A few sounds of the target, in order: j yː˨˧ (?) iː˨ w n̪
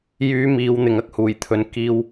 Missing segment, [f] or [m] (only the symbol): m